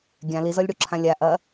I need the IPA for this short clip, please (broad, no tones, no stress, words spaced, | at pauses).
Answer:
ɡʲã lizɔlʲɽuǁʰã lʲa ʔɐ